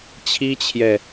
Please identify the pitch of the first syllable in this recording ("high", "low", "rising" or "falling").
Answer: high